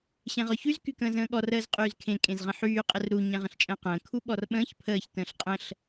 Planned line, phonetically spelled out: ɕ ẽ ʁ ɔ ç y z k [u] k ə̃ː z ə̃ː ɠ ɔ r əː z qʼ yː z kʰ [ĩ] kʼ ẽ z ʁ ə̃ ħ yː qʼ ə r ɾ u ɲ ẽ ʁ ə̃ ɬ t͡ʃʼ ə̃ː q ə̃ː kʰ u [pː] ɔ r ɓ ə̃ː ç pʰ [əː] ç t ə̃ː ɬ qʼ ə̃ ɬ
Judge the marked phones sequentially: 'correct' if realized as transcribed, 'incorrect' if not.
incorrect, incorrect, incorrect, correct

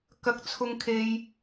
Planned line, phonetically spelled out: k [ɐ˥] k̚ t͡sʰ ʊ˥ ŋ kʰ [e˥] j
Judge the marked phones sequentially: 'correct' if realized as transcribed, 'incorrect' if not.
correct, correct

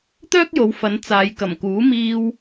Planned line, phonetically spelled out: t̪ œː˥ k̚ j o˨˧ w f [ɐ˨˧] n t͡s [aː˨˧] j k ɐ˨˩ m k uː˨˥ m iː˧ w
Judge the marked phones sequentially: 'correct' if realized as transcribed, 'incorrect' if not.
correct, correct

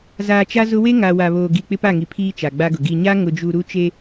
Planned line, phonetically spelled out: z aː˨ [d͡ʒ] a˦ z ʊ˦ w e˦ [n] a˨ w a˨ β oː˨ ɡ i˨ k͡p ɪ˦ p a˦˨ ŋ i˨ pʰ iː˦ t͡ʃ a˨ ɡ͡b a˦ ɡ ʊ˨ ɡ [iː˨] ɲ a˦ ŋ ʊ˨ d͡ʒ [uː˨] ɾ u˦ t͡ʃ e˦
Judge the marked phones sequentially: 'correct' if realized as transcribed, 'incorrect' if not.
incorrect, incorrect, incorrect, incorrect

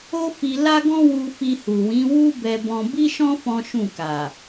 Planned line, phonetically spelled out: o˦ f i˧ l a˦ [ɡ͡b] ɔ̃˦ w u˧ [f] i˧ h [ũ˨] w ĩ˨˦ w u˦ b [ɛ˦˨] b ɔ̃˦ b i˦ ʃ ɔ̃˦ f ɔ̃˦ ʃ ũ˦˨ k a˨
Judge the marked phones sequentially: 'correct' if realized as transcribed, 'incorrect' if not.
incorrect, correct, incorrect, incorrect

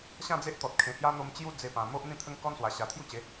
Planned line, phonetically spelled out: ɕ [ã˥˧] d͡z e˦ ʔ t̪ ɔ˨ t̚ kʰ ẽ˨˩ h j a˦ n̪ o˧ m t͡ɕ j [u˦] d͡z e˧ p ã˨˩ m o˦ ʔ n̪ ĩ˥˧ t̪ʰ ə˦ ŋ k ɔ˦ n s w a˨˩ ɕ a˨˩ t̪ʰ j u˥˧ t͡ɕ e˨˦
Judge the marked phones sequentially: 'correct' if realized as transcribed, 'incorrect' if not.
correct, correct

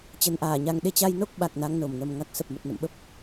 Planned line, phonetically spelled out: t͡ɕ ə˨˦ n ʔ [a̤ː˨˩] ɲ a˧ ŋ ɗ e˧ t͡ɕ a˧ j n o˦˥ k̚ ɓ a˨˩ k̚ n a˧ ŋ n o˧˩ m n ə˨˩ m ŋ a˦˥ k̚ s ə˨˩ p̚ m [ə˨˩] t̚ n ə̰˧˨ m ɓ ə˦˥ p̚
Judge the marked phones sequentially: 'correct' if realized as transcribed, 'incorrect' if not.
incorrect, correct

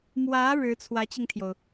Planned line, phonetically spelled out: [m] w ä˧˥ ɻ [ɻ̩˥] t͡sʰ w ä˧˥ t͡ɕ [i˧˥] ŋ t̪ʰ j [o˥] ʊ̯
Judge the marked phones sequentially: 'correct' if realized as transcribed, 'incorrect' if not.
correct, incorrect, incorrect, incorrect

